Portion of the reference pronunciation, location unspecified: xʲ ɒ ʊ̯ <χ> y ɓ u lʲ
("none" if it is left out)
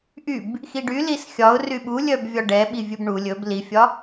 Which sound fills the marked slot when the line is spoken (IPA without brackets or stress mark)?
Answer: r